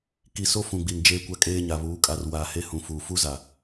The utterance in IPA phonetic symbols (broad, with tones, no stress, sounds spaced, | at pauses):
k i˨ s o˦ f ũ˨ ɡ͡b i˨ n d͡ʒ eː˦ kʷ a˦ kʼ eː˦ ɲ a˨ β uː˨˦ kʼ a˨ r w aː˨ h e˦ h ũ˨ f uː˨ f u˦ z a˨